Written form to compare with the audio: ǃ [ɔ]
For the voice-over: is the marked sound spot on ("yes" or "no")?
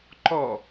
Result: yes